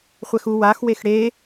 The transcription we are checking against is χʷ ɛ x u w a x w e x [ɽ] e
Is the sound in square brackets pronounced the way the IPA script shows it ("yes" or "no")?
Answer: yes